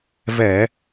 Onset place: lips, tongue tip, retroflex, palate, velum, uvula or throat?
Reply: lips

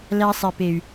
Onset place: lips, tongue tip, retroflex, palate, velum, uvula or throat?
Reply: tongue tip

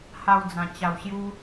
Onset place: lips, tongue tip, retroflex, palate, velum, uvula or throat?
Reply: throat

